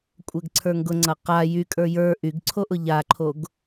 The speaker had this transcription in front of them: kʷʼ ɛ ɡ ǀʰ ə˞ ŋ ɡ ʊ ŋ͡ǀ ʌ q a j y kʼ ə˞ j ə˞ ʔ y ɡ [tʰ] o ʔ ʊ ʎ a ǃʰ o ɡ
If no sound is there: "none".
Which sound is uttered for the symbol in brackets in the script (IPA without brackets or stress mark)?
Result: ǀʰ